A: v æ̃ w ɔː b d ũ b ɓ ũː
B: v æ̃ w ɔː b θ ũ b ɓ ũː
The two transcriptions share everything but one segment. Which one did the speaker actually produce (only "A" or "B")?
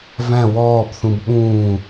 B